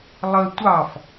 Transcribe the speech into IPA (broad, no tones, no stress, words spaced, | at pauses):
lˠə tʷɑf